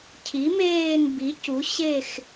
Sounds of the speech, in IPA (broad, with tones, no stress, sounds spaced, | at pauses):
cʰ i˩˥ m eː˦˨ n b i˩˥ c u˩˥ ɕ e˦˨ x